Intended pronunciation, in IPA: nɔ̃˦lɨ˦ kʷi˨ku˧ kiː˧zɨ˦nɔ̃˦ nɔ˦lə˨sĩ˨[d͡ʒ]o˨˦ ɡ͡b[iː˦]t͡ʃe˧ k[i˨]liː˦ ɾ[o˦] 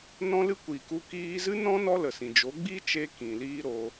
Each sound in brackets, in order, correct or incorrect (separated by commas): correct, incorrect, incorrect, correct